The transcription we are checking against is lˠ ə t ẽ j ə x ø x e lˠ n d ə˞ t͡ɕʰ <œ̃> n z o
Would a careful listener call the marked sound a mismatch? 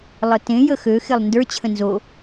yes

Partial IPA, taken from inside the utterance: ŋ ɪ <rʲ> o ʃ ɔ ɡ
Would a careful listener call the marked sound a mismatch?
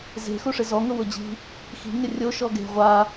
no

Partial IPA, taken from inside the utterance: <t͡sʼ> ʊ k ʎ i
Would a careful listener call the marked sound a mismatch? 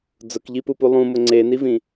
yes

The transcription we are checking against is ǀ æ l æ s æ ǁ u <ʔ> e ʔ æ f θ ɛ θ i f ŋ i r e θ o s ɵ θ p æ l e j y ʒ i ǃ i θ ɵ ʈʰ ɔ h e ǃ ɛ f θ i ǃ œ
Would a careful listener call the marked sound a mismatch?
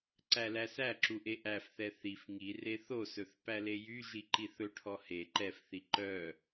no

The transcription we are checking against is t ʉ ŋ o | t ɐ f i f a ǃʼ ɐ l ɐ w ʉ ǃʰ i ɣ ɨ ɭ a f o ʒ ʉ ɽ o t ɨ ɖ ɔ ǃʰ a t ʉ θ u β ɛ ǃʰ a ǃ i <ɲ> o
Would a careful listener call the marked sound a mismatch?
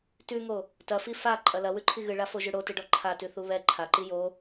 yes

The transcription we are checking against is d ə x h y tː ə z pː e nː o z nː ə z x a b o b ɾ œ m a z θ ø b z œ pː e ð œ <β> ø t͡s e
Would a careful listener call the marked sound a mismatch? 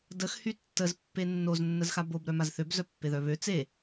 no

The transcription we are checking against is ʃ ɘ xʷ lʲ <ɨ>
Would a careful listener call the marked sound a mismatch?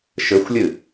no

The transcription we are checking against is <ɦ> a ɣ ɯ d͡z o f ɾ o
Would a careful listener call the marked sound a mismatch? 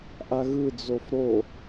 yes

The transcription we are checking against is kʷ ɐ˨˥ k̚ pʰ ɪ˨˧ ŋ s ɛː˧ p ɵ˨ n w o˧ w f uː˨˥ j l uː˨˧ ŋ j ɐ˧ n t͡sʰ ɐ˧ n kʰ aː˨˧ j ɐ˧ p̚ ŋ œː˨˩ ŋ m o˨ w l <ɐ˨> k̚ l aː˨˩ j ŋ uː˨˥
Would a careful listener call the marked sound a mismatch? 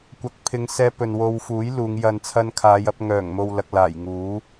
no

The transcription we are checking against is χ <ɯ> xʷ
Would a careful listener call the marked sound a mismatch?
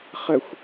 yes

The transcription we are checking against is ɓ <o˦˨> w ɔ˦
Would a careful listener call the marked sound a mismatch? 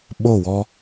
no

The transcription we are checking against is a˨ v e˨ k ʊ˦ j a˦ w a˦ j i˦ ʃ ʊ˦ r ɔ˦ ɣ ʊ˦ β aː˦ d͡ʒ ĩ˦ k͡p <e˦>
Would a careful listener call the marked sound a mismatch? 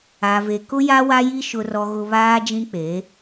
yes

